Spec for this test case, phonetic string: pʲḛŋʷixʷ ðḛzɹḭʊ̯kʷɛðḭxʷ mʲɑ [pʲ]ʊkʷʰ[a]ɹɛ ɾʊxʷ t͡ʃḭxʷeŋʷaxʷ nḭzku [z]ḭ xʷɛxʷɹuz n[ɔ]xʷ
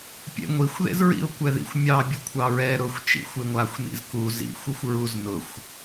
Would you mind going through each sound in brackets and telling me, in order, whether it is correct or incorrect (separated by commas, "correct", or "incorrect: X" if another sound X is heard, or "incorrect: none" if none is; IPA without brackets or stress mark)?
incorrect: bʲ, incorrect: ɑ, correct, incorrect: ʊ